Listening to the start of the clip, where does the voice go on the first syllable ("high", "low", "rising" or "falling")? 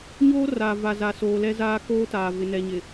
high